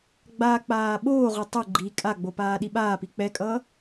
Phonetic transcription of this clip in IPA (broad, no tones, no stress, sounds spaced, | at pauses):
ɡ͡b a k͡p aː ɓ oː ʁ o tˤ o ɡ͡ǃ i kʼ a ɡ͡b o p aː ɗ i ɓ aː p i k͡p ɛ kʼ ʌː